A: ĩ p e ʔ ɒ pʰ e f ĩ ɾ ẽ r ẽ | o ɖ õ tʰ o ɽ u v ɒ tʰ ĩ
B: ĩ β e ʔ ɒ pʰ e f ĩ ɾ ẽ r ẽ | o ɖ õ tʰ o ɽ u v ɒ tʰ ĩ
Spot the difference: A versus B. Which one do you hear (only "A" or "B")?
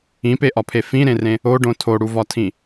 A